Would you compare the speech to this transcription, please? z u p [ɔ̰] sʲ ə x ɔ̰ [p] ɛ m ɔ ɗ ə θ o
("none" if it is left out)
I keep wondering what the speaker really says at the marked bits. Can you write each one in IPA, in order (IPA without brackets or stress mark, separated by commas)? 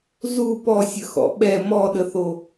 ɔ, ɓ